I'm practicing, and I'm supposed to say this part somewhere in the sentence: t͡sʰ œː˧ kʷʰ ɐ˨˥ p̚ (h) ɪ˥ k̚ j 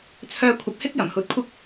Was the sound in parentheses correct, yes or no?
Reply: yes